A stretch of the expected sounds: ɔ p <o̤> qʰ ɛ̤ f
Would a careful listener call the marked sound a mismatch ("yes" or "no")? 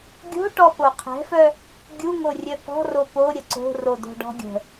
yes